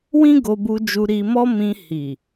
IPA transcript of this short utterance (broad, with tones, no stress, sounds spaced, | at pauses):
w ĩ˦ ɡ o˧ b u˧ d͡ʒ u˧ ɾ i˧ m ɔ˦ m ĩ˧ h i˨